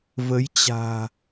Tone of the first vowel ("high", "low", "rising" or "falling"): rising